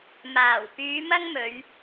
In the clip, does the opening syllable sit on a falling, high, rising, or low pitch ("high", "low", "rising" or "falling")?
low